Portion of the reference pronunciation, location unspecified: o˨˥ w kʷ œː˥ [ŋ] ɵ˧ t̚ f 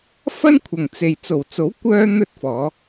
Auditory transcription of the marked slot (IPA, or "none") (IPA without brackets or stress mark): n̪